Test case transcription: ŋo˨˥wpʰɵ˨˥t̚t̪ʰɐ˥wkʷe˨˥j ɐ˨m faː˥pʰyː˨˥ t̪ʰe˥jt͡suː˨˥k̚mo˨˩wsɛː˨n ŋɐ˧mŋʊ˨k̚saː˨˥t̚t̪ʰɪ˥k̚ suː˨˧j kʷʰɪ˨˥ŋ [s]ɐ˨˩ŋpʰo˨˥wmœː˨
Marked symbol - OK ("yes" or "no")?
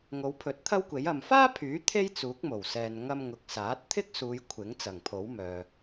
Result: no